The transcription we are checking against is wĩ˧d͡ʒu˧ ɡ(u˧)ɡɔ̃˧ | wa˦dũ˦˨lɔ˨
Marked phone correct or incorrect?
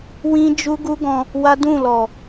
incorrect